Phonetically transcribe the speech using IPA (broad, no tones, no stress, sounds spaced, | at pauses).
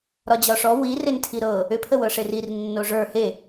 ɾ ɒ d͡ʑ ɒ ʂ ɔ w i r e n tʰ i ɾ ɤ | ʏ pʰ ə w ɤ ʂ e r i r nː o ʐ ə˞ h e